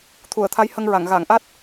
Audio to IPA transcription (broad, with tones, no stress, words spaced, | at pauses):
t̪ʰu˨˩˨ə̯ t̪ʰa˧˥jhə˧ŋɹa˨˩˨ŋ ɣa˨˩˨ŋʔa˦˥t̚